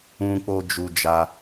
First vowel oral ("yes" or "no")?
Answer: no